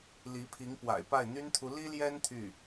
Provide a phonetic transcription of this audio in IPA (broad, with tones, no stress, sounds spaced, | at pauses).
l i˧˥ pʰ i˧˥ ŋ p w a̰˨˩ ɪ̯ p a˥˩ ɪ̯ n̪ y˥ n t̪ʰ u˧˥ l i˥ l j ɛ˥ n t̪ʰ y˥˩